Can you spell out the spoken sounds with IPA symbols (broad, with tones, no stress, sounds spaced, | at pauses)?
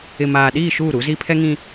ɪ˨ m aː˨ ɗ iː˦˨ ʃ uː˦˨ ɾ u˨˦ z i˦ pʰ ɛ˦ ŋ ĩ˦